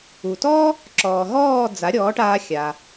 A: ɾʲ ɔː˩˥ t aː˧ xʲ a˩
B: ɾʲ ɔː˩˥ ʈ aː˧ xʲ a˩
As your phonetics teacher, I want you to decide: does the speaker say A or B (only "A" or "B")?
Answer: B